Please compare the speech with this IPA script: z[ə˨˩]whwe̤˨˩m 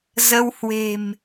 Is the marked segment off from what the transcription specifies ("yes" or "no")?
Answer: yes